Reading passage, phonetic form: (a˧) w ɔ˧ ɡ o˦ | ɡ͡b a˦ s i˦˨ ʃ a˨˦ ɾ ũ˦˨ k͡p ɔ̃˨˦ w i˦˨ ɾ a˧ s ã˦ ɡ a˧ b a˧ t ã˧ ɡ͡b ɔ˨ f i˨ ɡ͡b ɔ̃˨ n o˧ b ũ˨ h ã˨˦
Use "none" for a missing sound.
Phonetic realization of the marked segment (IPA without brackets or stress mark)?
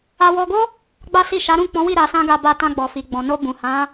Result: a˧